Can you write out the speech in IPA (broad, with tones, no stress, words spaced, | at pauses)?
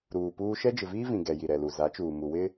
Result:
ɾuː˨puː˦ ʃɛ˦d͡ʒɪ˨viː˦vĩ˨ ɡɛ˨ji˨ɾɛ˨lu˨ za˨˦t͡ʃuː˨ mu˨wɪ˦